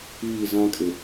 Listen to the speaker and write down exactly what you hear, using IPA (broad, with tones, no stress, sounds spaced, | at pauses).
iː˦˨ z ã˦ kʼ ɪ˨